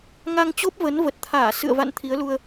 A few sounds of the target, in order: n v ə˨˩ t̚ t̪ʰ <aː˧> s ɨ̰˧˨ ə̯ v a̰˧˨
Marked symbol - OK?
no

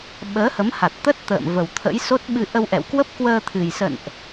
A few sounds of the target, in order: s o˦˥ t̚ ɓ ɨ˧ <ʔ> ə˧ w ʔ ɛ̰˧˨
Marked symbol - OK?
yes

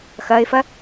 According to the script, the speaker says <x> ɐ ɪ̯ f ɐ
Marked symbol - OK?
yes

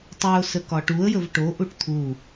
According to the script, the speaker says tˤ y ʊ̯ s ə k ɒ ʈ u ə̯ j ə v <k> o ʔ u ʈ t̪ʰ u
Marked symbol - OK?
no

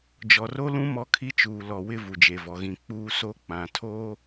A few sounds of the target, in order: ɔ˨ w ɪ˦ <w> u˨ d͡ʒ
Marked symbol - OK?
no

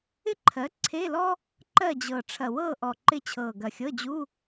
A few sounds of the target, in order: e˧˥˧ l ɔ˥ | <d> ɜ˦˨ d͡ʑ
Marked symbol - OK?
no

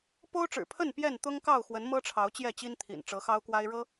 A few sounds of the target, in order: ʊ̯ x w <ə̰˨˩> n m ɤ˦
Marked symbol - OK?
no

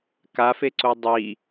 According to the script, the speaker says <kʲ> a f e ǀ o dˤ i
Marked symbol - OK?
no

